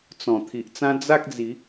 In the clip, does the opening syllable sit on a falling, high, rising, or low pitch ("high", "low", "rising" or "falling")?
low